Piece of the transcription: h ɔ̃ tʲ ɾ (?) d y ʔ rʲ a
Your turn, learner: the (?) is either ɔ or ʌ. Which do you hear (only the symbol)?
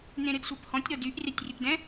ɔ